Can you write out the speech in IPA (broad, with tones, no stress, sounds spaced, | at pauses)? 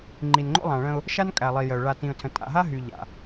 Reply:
ŋ͡ǃ i˨ n ŋ͡ǃ o̰˦ lˠ ã˨ ɭ ə̃˦ ʊ̯ | ʃ a˦ n kʼ æ˨ lˠ i˨ j ə˨ ʊ̯ ɭ a˨ t ĩ˨ ʊ̯ tʰ ə̃˨ tʼ a̰˨ ɦ a˦ ɦ y˨ ʎ a̰˨